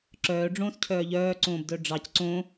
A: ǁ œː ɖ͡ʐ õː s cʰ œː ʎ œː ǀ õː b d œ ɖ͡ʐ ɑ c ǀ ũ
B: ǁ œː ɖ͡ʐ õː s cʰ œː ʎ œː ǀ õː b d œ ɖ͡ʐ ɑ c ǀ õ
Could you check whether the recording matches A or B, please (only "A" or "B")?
B